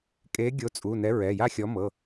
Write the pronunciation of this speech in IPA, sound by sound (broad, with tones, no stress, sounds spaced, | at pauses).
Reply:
kʼ eː˨˥ ɡʲ o˨˥ t͡sʼ u˩˧˩ n ɛ˨˥ ɹ ɛ˩˧˩ j a˥˨ xʲ ɔ˨˥ m ɤ˩˧˩